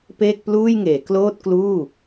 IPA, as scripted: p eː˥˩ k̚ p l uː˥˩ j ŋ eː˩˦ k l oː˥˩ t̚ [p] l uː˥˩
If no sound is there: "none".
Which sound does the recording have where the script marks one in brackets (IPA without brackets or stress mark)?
k